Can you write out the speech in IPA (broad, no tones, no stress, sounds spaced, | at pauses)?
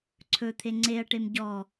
ǀʰ ɵ t̪ʰ e ŋ͡ǀ e ɐ̯ ʈ e m ɟ ɔ